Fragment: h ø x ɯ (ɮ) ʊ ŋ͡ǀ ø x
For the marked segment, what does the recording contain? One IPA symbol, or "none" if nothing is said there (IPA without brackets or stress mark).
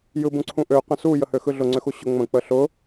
ɮ